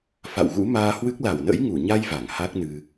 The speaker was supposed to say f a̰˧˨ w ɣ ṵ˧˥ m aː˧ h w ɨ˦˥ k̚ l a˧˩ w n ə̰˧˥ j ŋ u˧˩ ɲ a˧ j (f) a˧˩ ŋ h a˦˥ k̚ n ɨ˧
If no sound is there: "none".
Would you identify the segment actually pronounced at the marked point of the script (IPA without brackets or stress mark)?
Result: v